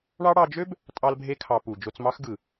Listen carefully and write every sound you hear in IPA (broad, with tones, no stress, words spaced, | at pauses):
ɳɑ˦ ɽɑ˧d͡ʒø˦b | tʼɑ˦lbʱe˦kʰɑ˧ pu˨ d͡ʒo˧t͡smɑ˦xɡɯ˨